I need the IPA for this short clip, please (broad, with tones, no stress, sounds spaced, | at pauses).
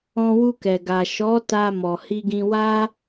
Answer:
ɔ̃˧ w u˧ k ɛ˨ ɡ a˨ ʃ ɔ˨˦ t a˧ m ɔ˨ h i˧ ɡ ĩ˧ w a˦